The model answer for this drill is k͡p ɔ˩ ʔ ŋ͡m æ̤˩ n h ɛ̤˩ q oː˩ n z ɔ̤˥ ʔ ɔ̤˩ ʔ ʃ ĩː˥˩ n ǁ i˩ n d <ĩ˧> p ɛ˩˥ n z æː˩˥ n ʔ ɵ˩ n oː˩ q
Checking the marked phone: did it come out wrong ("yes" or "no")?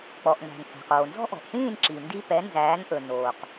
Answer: yes